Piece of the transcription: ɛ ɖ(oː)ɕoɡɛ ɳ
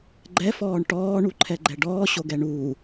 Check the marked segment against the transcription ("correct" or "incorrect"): incorrect